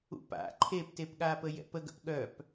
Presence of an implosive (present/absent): present